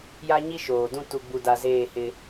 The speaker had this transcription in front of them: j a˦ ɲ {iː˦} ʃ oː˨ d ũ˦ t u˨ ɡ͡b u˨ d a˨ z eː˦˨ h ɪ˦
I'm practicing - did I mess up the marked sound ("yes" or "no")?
yes